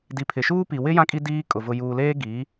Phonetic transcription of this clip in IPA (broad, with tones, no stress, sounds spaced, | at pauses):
d i˨ pʰ ɪ˨ ʃ uː˦ p i˨ w ɪ˦ j ã˦ kʼ i˦ d iː˦ kʼ ʊ˨ v ʊ˨ j uː˨ l eː˦ ɡ iː˨˦